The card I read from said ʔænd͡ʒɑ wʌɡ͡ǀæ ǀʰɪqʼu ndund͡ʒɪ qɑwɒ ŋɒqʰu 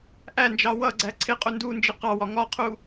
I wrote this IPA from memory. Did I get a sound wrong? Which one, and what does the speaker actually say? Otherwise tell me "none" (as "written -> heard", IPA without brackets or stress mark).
none